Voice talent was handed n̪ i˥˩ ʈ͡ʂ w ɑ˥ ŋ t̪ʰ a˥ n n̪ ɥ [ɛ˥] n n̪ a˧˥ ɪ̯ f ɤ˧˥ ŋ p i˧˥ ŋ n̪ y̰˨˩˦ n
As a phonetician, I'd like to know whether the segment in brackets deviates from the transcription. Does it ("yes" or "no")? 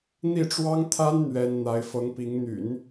no